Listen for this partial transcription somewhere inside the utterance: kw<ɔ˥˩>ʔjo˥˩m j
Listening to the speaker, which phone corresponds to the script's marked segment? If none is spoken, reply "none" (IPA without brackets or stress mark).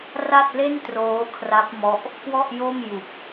ɔ˥˩